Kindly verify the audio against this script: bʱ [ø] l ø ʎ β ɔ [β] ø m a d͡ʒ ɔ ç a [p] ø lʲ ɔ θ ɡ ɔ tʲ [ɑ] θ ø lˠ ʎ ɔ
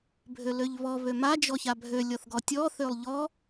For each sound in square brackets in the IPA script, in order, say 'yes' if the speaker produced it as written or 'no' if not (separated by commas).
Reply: yes, yes, no, no